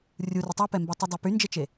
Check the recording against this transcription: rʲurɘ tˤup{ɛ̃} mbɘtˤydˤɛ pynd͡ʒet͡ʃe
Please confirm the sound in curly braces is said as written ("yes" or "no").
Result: no